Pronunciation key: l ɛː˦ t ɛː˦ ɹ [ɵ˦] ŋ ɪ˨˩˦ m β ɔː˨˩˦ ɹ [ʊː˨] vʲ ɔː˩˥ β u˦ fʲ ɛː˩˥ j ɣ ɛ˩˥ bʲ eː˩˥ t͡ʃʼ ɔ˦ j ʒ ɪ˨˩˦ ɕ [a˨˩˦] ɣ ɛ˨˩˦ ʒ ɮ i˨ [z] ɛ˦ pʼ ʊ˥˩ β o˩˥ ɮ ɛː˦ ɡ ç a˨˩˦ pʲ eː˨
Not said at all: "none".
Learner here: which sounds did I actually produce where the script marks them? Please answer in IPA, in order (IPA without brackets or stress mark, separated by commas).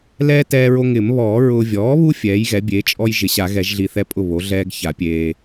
o˦, ʊː˨, a˨˩˦, θ